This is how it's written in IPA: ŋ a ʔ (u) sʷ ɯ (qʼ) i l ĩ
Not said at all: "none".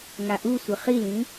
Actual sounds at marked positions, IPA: u, χ

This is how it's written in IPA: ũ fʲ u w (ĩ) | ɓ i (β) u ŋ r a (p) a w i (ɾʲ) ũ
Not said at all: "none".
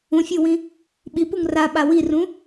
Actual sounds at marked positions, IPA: ĩ, p, ɓ, r

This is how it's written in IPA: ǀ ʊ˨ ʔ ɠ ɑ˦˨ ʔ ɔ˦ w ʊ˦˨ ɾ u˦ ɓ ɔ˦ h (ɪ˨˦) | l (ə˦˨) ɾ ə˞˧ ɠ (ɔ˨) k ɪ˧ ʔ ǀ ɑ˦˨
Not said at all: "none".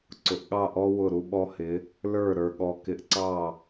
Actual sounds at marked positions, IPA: ɪ˨˦, ə˞˦˨, ɔ˧

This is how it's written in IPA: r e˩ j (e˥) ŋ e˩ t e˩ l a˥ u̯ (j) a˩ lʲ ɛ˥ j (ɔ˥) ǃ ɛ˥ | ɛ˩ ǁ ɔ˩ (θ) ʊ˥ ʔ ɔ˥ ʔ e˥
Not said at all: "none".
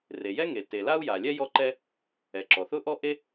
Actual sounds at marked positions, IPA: ɛ˥, j, ɔ˥, θ

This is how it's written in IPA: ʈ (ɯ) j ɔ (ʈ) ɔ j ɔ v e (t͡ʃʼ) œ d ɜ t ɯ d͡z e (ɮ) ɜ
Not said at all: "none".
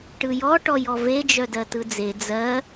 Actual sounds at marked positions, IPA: ɯ, ʈ, d͡ʒ, d͡z

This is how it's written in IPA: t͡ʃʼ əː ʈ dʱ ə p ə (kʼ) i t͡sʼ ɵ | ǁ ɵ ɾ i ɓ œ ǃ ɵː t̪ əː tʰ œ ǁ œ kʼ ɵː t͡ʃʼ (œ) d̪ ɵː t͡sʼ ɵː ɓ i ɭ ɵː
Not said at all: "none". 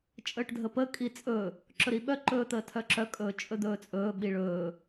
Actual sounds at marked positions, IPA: kʼ, ɵ

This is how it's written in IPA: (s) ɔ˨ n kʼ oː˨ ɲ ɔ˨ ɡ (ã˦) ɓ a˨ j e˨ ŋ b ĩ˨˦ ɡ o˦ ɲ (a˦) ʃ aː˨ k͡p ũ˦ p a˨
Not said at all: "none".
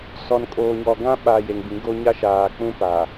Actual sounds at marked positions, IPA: s, ã˦, a˦

